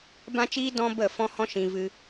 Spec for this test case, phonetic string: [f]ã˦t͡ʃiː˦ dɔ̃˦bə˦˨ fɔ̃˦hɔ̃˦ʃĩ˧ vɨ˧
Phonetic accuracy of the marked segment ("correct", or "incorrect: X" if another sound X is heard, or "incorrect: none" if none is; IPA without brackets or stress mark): incorrect: b